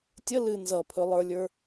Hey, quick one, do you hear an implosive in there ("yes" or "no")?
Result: no